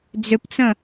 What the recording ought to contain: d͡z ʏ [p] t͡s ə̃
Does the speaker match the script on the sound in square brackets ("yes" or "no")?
yes